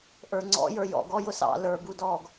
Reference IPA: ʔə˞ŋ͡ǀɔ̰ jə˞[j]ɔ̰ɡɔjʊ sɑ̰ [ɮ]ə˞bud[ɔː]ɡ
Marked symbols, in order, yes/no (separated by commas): yes, no, yes